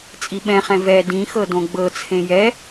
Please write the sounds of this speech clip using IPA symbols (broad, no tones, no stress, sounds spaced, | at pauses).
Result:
t͡sʼ i ɓ ɛ̃ χ ɛ̃ v ɛ d ĩ x ɤ d õ ɡ͡b ɤ t͡sʰ ẽ j ɛ